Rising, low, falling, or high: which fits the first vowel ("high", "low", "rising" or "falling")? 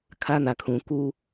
high